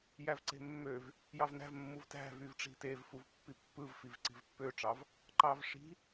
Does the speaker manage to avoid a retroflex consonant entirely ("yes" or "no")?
no